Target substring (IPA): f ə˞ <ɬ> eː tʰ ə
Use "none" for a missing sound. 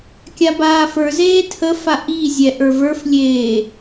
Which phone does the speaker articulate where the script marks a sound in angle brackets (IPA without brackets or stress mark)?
z